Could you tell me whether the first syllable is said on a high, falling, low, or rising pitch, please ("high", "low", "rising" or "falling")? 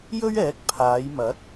high